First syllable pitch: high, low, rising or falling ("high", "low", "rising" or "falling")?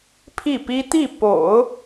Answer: falling